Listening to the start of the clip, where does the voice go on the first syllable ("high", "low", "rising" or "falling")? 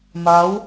rising